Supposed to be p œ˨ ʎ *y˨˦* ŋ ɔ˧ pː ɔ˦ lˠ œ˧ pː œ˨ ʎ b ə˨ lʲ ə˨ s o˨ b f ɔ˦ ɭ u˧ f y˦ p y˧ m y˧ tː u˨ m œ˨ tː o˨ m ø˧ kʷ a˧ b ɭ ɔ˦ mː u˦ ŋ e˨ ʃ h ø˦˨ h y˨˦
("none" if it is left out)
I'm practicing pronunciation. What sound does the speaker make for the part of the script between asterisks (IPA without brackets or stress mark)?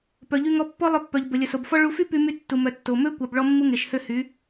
y˧